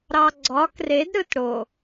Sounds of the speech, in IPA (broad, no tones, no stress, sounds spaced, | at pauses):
ɾ ɑ ɡ͡ǀ ɒ k r e d ɾ ɯ t ɽ o